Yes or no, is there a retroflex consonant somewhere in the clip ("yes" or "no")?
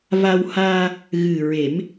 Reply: no